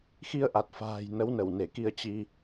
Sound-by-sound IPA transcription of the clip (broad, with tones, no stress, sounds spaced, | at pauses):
x i˧ ə̯ ʔ a˨˩ t̚ f a̤ː˨˩ j n ə˨˦ w n ə˧˩ w n e˧˩ k i˧ ə̯ t͡ɕ i˧